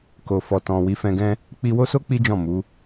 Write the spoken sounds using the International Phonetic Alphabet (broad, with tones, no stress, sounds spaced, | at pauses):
k o˨ f ɔ˨ t ɔ̃˨ w i˨˦ f ɛ̃˧ ɡ ɛ̃˦ | k͡p i˧ w o˦ s o˦ k͡p i˦ d͡ʒ ɔ̃˦˨ m u˨˦